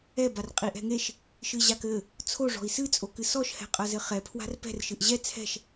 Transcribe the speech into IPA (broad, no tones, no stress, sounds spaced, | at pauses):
ɛ b a r qʼ i ʔ ɛ̤ ŋ e ʃ | ʃ ɨ ʑ a k ɘ | t͡sʰ o ʐ ɔ̤ i̯ s ɨ t͡sʼ o k ɨ s ɔ ʃ h ɛ̤ qʼ ɐ z ɘ χ ɛ pʰ w a̤ r p ɛ̤ r ʃ ɨ ʔ ʑ ɛ t͡sʰ ɛ̤ ʃ